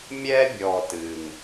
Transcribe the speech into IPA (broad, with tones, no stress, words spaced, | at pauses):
mʲɛ˦bʲɔ˨t ɨ˨ŋ